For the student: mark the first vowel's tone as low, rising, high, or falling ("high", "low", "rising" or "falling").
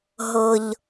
low